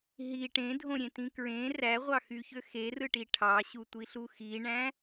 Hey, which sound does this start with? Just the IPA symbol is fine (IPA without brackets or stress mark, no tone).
ɦ